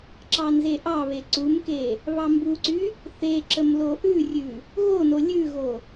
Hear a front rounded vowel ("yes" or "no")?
yes